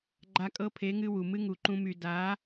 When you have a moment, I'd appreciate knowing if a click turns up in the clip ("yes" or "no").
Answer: yes